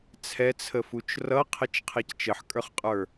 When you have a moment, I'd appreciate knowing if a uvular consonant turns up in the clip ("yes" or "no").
yes